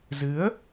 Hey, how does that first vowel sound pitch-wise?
rising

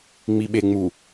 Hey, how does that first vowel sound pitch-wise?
low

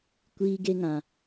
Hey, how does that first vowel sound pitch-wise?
high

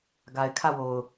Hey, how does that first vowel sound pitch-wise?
low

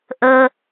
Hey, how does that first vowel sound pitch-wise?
high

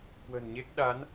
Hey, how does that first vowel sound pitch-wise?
low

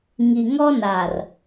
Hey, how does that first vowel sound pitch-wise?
low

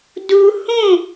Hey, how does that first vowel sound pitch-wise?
high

